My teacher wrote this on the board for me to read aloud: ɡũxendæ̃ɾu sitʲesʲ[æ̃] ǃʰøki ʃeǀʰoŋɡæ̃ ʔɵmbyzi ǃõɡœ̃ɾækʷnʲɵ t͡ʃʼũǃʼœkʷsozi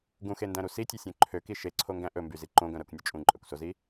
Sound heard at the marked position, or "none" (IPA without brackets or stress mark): œ̃